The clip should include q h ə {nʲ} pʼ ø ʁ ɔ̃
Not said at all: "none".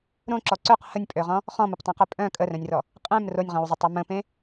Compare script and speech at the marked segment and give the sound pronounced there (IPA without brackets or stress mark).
nʲ